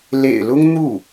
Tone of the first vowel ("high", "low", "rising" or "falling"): low